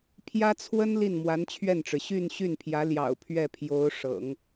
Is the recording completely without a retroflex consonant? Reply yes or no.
no